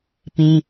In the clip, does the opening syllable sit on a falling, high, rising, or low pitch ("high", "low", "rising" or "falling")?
high